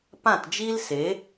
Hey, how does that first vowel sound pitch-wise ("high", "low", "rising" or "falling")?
falling